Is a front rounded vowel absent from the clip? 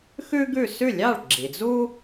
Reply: yes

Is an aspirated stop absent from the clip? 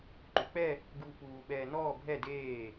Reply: yes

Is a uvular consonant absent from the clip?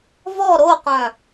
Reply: no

